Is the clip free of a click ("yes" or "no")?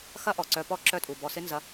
no